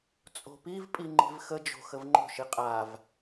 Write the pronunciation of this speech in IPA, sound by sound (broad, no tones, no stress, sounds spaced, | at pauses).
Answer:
t͡sʼ o̤ p i v pʼ i ŋ͡ǃ i̤ v x ə d͡ʒ o̤ x ə v ŋ͡ǃ o̤ ʃ i qʼ a v